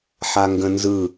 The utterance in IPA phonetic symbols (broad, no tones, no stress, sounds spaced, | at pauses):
ħ a ŋ ɡ ə̃ n z ɯ